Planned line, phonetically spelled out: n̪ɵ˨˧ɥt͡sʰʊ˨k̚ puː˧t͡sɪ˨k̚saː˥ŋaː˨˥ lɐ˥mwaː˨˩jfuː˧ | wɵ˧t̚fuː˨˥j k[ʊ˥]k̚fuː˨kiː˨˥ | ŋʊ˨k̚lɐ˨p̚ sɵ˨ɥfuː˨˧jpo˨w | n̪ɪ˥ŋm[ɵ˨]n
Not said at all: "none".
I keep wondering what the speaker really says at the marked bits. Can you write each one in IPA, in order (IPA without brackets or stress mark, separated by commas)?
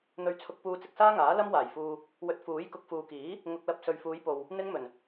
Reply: ʊ˨, ɵ˨˩